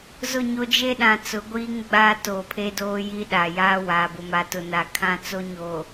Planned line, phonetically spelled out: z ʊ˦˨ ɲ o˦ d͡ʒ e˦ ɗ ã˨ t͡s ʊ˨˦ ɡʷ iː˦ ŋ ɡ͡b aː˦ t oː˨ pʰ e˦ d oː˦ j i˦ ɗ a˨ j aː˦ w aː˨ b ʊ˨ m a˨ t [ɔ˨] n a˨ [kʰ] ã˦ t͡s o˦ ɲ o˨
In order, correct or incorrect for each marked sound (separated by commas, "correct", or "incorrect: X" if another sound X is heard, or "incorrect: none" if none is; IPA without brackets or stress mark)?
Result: incorrect: ʊ˨, correct